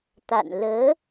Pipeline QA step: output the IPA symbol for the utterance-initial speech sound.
t̪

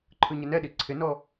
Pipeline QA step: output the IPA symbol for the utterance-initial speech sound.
ǃʰ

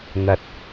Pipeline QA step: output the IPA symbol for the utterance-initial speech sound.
n̪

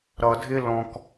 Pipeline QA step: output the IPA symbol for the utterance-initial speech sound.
ɾ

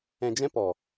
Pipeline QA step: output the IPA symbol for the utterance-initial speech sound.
ɛ̃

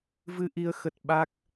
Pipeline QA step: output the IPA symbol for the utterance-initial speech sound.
v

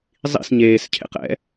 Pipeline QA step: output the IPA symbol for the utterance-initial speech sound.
zˤ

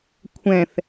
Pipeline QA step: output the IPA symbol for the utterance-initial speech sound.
kʷʰ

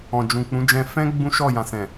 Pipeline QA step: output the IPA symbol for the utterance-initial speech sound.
ɔ̃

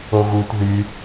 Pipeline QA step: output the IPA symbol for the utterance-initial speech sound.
o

